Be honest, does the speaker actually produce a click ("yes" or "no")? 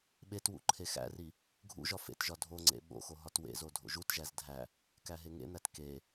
yes